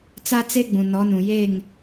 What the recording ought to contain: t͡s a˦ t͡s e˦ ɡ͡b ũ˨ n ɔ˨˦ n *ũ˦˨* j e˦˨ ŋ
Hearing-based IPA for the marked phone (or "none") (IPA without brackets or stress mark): ũ˨